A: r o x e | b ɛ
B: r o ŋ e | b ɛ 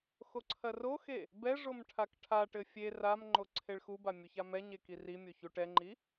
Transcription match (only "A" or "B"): A